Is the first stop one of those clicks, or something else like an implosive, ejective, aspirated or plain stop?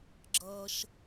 click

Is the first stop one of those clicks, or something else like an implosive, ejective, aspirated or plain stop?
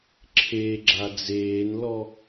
click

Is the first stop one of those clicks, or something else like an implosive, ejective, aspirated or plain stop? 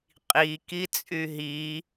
ejective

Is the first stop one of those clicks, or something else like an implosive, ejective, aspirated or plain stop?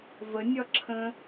click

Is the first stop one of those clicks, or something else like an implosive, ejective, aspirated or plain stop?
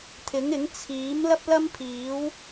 aspirated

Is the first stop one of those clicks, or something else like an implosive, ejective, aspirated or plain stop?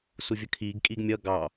aspirated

